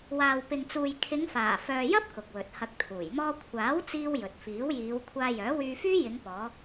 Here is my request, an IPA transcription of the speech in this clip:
waː˨wpɪ˨ŋt͡suː˨j kʰɪ˨˧ŋfaː˨˩fœː˨jɐ˥p̚ kʊ˨k̚wɵ˨t̚hɐ˧k̚t̪ʰuː˨˩j mɔː˧kʷʰaː˨˥w t͡siː˥wjɵ˨t̚ fiː˨˥wjiː˨˧w kʷʰaː˧jœː˨˥wyː˧fyː˥ jɪ˨˧ŋ pɔː˨˧

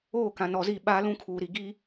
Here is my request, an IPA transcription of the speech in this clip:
oː˦˨kã˨nɔ˨zi˦˨ ɓaː˦lũ˦kʰuː˨ɾi˨ ɡi˦

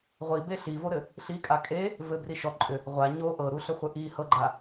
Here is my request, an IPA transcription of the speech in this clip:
ʁʷibe ɬivoɾɘ | ɬikʼa kʼe | vɘbri ʃɔ ǃʼʏ | ʁʷa ɲo ʔɤɾuɬʏχʷɘ ʔi hɤɡ͡ǃa

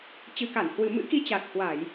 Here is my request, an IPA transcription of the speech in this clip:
t͡ɕɨ˨˩ka˧˩nhwɨ˨˩ mɨ̰˧˥ki˧ t͡ɕa˨˩t̚hwa˧˩˨j

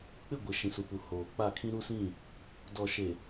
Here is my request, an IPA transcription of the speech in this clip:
k͡pɪ˦˨ɡʷɪ˨ ʃĩ˨su˨pu˨ hoː˨k͡pa˦˨kʰĩ˦ ɾu˦sĩ˦˨ | dɔ˨ʃe˨

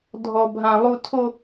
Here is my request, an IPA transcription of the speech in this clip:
dʱɔ˦bʱã˦ lˠu˦tʰo˦

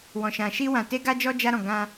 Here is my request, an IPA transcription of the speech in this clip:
wɔ̃˧ʃã˧ ʃi˦wã˧ te˦ɡa˦d͡ʒɔ˦ d͡ʒa˦ɾɔ̃˧ ɡã˧

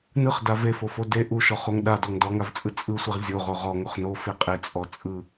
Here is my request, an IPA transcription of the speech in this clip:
nɯχda vefofo de ʔuʃɔχoŋ ɗadɔŋ dɔŋavt͡sʼɯ t͡sʼɯsʷeʁ zʲoʁo ʁɔŋoχ nofe qʼet͡sʼɔ t͡sʼɯ

